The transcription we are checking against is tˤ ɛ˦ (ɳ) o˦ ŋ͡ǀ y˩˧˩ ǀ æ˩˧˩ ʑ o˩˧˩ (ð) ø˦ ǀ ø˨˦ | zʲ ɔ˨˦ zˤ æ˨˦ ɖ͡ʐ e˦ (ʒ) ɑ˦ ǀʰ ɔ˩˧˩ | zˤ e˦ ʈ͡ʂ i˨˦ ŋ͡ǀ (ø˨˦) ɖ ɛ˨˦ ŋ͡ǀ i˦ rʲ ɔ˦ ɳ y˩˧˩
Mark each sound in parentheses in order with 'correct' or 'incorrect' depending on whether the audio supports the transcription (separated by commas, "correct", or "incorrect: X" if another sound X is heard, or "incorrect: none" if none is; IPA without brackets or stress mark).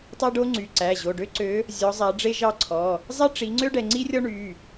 incorrect: ɖ, incorrect: ɖ, correct, incorrect: ø˦